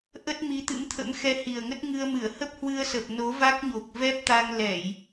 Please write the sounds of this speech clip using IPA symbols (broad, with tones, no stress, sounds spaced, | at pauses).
ʔ ə˦˥ t̚ m i˨˦ t̪ ɨ̰˧˥ m t̪ʰ ə̰˧˥ m x ɛ˧ h i˨˩ ə̯ ŋ ə˦˥ t̚ ŋ ɨ˧ ə̯ m ɨ˧˩ ə̯ h ə˦˥ p̚ h w ɨ˧ ə̯ s ə˨˩ p̚ n o˨˦ v a˦˥ k̚ ɲ o˨˩ k̚ v ɛ˦˥ p̚ t̪ a˧ ŋ l ɛ˧˩˨ j